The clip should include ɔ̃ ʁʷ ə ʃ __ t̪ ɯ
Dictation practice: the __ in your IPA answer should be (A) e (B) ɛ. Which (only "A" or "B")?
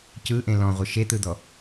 A